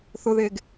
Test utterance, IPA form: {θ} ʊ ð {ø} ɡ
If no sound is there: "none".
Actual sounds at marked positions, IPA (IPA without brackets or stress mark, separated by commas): θ, e